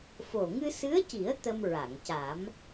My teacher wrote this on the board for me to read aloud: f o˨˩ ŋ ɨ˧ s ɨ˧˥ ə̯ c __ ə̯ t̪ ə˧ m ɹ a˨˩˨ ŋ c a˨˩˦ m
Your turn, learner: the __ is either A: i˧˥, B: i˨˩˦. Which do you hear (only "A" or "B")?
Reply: B